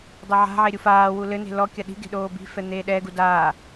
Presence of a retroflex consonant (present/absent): absent